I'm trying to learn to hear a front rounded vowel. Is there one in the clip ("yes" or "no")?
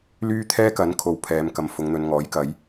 yes